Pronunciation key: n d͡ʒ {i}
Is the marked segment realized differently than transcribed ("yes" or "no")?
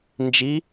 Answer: no